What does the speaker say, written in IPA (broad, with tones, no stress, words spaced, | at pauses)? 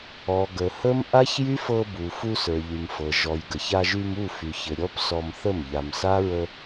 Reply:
ɔ˨ ɡə˨hə˦m ʔa˦çjy˦fɤ˧bu˨ fu˧sə˞˨ʎy˨mfɤ˨ ʒɔ˨j ɡə˨ça˧ʒy˧mu˦˨ fy˨çɘ˨ ɾʲɔ˦psɔ˧mθə˦˨m ʎa˨msa˦ɹə˧